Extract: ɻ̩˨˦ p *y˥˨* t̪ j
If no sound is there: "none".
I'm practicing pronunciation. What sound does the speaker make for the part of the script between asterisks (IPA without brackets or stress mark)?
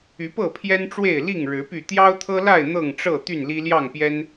y˥˨